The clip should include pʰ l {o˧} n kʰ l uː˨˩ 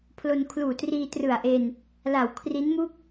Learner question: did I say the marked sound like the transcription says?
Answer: yes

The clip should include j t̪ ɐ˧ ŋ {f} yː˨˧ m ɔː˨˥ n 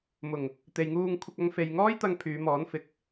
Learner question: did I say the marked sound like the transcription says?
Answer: no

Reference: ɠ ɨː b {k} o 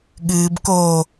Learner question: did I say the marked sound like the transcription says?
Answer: yes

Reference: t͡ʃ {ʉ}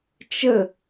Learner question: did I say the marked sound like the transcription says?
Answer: no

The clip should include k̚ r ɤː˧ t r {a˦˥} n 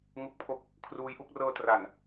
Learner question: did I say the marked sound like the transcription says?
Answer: no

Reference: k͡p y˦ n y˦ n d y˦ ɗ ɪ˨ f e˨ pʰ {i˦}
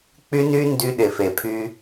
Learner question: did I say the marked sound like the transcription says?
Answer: no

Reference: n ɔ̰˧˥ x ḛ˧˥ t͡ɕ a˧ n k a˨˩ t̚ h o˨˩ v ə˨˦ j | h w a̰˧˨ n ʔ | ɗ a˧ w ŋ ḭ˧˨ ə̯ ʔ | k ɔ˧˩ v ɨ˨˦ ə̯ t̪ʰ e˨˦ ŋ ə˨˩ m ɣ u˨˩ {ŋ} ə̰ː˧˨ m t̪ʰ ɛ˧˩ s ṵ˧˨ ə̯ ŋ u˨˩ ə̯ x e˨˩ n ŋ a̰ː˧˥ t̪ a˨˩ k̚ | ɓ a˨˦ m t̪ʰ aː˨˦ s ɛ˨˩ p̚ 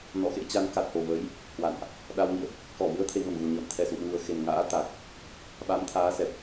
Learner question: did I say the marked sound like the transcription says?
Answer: no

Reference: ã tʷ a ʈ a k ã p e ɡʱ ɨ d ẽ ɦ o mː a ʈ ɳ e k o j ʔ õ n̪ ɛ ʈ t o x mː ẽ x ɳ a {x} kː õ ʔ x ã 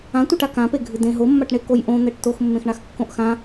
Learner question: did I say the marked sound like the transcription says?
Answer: yes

